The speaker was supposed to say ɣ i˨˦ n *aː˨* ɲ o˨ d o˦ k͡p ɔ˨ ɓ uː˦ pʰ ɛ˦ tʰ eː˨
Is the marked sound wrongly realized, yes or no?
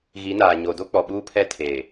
no